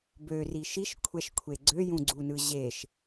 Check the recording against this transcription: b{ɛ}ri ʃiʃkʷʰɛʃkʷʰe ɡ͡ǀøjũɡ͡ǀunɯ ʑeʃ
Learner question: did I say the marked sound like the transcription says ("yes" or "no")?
no